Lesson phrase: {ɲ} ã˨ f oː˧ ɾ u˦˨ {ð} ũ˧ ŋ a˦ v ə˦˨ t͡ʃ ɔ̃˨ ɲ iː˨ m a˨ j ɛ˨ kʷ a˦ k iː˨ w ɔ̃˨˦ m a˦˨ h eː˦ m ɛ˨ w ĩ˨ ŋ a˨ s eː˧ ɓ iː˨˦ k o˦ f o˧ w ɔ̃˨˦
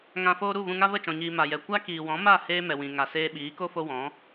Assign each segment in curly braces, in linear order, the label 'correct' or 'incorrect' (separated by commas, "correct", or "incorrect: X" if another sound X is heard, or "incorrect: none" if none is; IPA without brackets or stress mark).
incorrect: ŋ, incorrect: v